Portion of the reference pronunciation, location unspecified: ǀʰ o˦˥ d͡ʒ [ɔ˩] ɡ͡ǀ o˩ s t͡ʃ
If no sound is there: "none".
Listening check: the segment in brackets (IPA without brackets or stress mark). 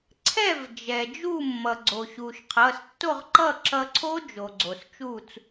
o˩